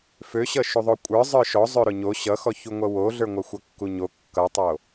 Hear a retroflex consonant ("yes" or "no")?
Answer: no